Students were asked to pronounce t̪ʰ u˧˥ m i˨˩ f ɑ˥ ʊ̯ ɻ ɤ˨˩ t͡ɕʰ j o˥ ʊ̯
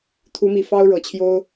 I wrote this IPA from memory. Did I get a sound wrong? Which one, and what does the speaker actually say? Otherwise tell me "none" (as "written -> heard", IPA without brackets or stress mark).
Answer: none